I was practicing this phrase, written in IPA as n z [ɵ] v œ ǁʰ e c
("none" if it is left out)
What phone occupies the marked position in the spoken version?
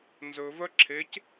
ɵ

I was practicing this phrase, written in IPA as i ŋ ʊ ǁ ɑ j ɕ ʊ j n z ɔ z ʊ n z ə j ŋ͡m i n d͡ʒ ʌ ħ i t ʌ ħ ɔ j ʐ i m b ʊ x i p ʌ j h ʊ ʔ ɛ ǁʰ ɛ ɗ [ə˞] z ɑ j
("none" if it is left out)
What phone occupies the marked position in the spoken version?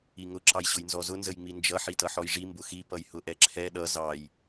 ʌ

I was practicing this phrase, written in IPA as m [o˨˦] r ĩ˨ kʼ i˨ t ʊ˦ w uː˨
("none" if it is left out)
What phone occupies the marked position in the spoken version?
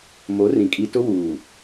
o˨˦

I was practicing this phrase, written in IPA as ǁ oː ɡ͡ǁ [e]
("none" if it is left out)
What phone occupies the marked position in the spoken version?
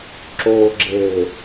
e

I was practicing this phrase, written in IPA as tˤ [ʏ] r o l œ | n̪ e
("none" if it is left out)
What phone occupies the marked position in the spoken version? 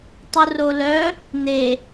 u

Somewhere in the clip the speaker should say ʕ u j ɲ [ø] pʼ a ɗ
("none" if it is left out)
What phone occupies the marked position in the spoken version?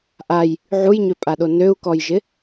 ø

